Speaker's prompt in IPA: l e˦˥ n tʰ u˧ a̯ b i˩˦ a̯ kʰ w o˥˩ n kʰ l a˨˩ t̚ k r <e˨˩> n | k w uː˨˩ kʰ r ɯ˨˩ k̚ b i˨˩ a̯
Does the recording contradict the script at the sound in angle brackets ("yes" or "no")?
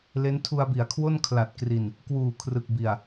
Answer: yes